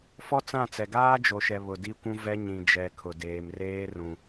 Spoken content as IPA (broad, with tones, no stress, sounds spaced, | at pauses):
f ɔ˦ t͡s ã˦˨ t͡s ɛ˨ ɡ aː˦ d͡ʒ o˨ ʃ ɛ˨ β ʊ˨ d i˦ kʷ ũ˦ v ɛ˦ ɲ ĩ˨ d͡ʒ ɛ˨ kʰ ʊ˨ d eː˨ m r eː˦ r ũ˨